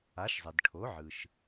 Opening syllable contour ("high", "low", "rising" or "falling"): rising